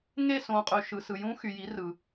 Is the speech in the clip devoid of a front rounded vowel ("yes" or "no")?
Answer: no